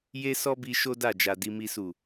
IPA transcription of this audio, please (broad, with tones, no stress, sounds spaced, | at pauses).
j e˦ s ɔ˦ b i˧ ʃ o˦ d a˦˨ d͡ʒ a˨ d i˧ m i˧ s u˨